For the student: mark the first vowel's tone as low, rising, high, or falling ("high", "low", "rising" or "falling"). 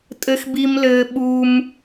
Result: high